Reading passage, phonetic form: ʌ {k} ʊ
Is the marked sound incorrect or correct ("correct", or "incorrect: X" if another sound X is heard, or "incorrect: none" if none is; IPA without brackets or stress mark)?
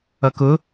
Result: correct